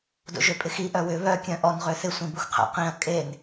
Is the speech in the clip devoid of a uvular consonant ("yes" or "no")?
no